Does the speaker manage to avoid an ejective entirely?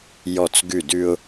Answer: yes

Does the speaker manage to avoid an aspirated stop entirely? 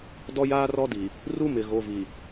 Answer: yes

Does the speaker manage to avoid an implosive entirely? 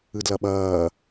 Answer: no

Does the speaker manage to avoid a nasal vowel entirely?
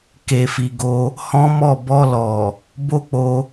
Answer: no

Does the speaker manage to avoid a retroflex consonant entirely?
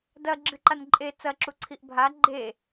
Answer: yes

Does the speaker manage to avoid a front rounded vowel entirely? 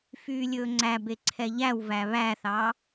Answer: no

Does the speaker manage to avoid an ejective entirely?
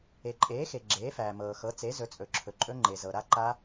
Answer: no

